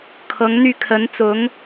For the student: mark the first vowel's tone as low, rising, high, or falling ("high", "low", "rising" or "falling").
rising